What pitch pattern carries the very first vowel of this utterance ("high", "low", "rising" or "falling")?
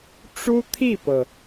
high